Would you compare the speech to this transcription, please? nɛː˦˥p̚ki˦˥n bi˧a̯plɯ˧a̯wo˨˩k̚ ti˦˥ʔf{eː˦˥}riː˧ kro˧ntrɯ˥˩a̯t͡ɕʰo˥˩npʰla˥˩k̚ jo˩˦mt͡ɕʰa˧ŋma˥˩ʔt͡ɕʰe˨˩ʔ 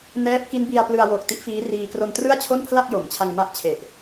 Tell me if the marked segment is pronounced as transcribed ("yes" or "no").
no